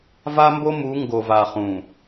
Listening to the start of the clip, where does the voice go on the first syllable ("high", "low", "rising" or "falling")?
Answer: high